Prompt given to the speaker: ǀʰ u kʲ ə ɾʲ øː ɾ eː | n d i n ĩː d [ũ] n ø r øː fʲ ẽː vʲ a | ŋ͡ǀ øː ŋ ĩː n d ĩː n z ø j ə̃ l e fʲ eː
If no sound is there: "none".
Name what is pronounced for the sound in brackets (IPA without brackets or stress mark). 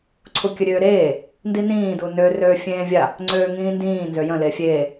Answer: u